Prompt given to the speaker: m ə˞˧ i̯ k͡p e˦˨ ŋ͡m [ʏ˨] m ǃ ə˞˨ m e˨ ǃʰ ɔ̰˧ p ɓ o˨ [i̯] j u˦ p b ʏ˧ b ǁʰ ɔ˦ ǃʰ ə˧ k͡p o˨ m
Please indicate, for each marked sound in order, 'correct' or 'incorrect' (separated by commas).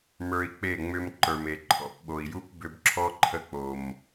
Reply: incorrect, correct